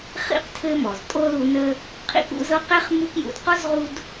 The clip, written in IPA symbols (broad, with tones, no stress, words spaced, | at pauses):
χḭ˥qtʰɘ˦mɔ˩z tʼo˦ lu˦nə˥ | qʰḭ˦k ṵ˦zɤ˦q ɛ˥χmu˦k jṵ˨dqɔ˥zʁu˦d